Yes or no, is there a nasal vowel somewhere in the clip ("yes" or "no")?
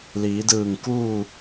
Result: no